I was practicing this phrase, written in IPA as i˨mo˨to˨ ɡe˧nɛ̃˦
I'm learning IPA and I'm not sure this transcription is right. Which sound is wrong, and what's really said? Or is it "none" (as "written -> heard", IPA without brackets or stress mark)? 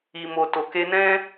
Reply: ɡ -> k